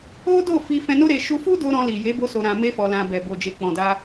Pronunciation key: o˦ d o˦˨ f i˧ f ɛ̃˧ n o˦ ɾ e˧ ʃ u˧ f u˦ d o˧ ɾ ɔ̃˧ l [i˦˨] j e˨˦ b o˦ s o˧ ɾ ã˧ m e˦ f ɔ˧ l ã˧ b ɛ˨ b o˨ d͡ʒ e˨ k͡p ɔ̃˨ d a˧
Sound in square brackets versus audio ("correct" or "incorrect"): incorrect